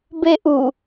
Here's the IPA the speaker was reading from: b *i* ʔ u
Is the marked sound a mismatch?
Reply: yes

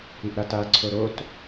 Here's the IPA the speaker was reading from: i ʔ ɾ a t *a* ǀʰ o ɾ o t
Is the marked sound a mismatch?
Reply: no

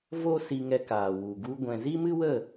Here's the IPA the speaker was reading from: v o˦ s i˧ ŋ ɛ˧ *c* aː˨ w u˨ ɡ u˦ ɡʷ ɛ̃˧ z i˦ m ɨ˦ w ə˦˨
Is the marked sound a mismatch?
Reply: yes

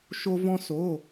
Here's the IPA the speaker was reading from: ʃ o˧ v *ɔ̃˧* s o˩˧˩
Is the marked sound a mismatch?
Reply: no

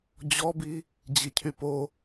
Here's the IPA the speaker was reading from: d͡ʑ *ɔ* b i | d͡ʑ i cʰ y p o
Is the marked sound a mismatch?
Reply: no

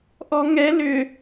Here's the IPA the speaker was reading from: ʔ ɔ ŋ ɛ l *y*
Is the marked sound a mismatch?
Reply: yes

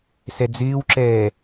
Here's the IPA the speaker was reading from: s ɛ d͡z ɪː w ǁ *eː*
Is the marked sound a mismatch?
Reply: yes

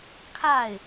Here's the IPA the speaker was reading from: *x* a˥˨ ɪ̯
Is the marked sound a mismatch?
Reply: yes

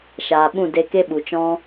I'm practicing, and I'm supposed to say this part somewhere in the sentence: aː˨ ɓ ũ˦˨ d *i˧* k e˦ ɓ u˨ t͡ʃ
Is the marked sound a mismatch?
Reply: yes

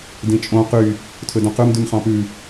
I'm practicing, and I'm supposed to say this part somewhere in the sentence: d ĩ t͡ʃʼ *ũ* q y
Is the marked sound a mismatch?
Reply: yes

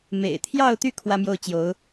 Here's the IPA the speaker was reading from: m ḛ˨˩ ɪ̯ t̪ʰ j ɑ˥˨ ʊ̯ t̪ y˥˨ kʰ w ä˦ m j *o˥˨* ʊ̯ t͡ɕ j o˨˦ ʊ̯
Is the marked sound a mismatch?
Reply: no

